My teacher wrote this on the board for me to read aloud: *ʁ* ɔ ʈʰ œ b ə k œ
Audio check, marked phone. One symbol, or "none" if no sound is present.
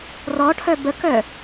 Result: r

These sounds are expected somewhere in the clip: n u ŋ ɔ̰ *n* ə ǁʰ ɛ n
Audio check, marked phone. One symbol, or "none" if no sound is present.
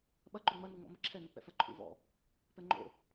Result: m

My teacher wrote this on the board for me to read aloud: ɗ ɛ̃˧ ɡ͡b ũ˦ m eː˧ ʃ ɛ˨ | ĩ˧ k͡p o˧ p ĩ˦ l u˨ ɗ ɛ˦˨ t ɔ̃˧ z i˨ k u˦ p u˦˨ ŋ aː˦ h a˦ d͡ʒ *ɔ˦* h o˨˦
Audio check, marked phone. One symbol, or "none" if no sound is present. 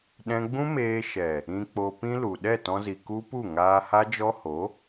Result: ɔ˦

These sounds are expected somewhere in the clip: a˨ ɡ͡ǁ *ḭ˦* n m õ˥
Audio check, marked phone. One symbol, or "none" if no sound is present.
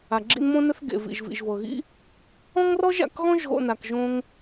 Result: ḭ˦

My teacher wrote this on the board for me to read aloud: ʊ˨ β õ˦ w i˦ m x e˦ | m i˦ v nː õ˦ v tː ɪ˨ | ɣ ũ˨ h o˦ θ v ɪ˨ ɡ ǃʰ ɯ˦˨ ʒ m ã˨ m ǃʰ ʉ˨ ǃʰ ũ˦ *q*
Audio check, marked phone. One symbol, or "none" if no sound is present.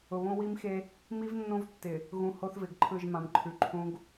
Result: ɡ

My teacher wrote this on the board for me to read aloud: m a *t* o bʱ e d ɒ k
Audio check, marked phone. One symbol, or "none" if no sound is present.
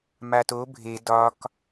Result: t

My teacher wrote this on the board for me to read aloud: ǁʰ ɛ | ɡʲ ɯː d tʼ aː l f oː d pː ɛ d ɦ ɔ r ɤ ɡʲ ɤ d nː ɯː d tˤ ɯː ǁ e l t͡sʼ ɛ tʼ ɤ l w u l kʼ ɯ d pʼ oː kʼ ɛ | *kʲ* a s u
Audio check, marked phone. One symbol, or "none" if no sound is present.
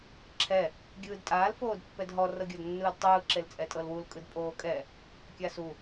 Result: kʲ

